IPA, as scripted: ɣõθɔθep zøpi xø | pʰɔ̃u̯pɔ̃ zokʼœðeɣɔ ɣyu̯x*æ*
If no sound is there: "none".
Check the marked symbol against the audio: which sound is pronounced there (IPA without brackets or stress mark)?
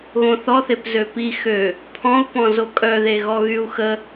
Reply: ə